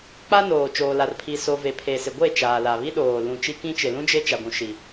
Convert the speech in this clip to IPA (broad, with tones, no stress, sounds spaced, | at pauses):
k͡p a˦ n oː˨ t͡ʃ oː˨ l a˨ r pʰ i˨ s o˨ v e˨ pʰ e˨ s ɪ˨ ɡʷ e˦˨ t͡ʃ aː˨ l a˨ β i˦ ɗ oː˨ l ũ˨ t͡ʃ i˦ k ĩ˦ t͡ʃ ɪ˨ l ũ˦ d͡ʒ e˦ t͡ʃ a˨ ɡʷ ũ˨ ʃ i˨